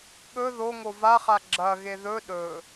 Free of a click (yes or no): no